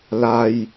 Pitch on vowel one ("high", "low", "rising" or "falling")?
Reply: low